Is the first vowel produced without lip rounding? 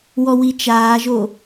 no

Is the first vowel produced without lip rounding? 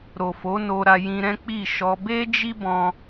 no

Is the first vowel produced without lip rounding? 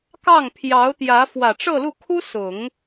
yes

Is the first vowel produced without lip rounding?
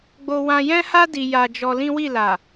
no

